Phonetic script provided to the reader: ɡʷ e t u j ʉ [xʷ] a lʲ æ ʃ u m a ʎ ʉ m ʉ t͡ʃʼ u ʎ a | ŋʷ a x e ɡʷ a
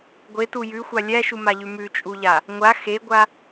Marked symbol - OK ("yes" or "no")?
yes